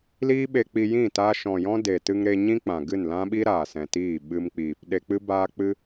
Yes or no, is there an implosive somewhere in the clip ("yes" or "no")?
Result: yes